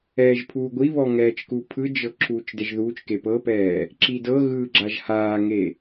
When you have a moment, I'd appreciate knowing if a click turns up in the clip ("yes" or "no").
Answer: yes